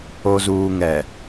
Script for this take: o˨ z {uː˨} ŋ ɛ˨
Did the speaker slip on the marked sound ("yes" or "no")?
no